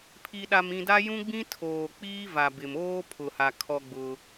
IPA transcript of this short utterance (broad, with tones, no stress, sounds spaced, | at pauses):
pʰ i˨ ɗ a˨ m ĩ˨ d a˦ j ũ˦ ɡ͡b ĩ˦ tʰ oː˨ k͡p iː˦ v a˨ b ɪ˨ m oː˦ pʰ ʊ˨ h a˨ kʰ ɔ˦ ɡ͡b ʊ˦